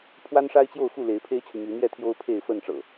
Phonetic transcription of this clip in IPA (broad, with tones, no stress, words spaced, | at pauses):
pʰwa˦nʂa˦ɪ̯t͡ɕjo˥˨ʊ̯xu˥˨ le˨˦ɪ̯pʰe˦ɪ̯t͡ɕʰy˨ my˨˦n̪jɛ˥˨t̪ʰjo˦ʊ̯pʰe˥˨ɪ̯ fə˥˨n ʈ͡ʂɤ̰˨˩